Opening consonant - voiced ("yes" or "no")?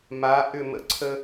yes